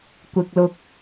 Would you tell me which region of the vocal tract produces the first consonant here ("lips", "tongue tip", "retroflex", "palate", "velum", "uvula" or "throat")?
velum